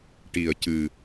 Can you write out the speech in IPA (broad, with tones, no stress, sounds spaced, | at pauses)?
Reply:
ʈ i˨˩ ə̯ c ɨ˨˩